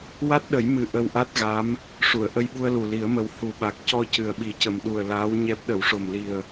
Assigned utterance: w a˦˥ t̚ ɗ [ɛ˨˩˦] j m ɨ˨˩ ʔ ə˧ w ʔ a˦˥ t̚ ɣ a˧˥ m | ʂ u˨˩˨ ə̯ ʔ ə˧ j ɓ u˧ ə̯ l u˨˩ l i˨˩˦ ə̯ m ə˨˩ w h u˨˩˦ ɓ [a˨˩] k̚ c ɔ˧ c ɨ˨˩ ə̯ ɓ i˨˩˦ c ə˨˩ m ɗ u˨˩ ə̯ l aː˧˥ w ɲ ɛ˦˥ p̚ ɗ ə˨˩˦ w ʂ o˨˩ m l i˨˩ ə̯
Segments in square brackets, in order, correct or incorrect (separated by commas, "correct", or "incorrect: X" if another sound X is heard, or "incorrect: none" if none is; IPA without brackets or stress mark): incorrect: ə˨˩˦, correct